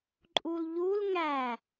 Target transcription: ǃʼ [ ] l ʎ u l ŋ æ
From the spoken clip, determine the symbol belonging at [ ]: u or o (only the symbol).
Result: u